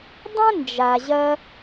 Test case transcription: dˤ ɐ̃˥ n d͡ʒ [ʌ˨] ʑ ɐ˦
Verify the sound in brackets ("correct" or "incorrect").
incorrect